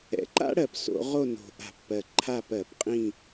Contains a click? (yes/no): yes